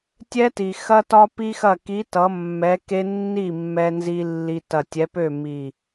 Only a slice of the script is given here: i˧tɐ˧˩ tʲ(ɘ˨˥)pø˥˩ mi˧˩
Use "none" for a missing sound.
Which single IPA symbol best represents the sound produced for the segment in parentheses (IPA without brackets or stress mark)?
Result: ɛ˨˥